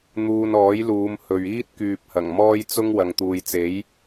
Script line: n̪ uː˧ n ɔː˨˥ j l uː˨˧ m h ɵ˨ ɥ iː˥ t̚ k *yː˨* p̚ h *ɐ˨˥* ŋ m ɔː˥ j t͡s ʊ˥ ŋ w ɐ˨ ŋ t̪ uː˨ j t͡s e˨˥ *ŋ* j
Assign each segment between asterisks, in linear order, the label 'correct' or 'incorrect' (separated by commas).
correct, incorrect, incorrect